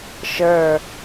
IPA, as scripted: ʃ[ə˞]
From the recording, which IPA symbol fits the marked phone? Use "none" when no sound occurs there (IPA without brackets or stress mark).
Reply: ə˞